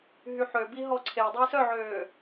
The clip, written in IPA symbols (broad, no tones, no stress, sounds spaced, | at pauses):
ɦ y ħ ø b i ɦ ɔ ǀʰ e dˤ i s œ ʕ øː